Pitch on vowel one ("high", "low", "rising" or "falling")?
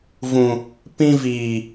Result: low